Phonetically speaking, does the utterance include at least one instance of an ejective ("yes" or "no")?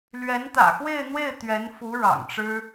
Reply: no